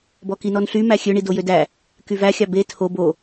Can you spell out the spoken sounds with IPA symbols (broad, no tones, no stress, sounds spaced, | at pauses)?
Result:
b ɔ k i n ɔ n ɬ y m æ xʲ ø ɳ i d o j ø d æ | k y v æ xʲ ɑ b e tʰ o b o